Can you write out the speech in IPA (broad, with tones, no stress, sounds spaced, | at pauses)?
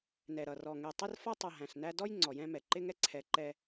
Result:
n ɛ˨ ɾ ʌ˨ r ɔ˨ ŋ ɛ˨ tˤ ɪ˦ r f ɔ˦ tˤ ʌ˨ ɦ æ̃˨ ɬ n æ˦ d ɔ˦ j ŋ͡ǀ ɔ˨ j ɛ̃˦ m ɛ˨ ǃ ɪ˦ ŋ ɛ˦ ǀʰ ɛ˨ ǃ ɛ˦